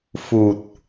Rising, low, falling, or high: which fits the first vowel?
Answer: low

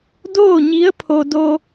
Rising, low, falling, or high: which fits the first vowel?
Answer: falling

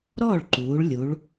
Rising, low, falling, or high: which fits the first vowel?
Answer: falling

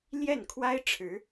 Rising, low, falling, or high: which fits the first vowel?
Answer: falling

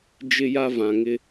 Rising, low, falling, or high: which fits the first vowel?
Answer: high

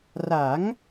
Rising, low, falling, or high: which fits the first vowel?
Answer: rising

